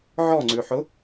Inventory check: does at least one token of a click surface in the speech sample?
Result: yes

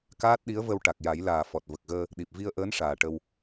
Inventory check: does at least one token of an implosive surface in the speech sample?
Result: yes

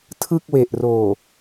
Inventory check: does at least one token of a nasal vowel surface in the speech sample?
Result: no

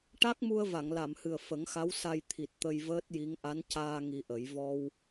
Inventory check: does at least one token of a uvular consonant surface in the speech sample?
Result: no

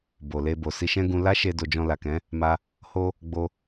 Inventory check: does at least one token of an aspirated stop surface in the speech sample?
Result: no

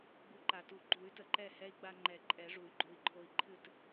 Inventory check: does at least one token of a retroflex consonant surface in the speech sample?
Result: yes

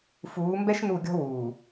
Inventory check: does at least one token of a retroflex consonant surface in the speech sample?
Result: no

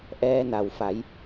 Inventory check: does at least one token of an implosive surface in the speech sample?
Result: no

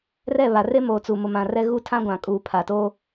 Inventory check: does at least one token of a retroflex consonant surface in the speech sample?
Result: no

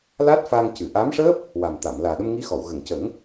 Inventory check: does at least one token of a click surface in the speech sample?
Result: no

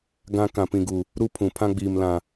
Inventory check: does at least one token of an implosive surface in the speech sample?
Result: no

